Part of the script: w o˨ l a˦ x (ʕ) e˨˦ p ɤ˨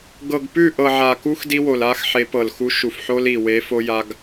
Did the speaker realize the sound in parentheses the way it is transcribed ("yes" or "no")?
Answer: no